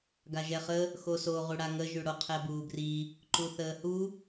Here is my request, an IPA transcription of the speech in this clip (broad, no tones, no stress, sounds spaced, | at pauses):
ɡ a ʒ ɛ χ ə | x o s o ʁ u ɽ a ŋ ə ʒ y ɽ o qʰ ɛ b uː ɡ r i | ǃ u θ əː h u